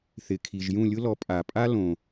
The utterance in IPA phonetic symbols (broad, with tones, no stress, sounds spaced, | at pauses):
θ ɪ˩ kʰ i˩ ʒ j ũ˦˨ lʲ ʊ˥ l ɔ˨˥ pʼ a˩ pʼ a˥ l õ˩